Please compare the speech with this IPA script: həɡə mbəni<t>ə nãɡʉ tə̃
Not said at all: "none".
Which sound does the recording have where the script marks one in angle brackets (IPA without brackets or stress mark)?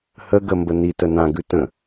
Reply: t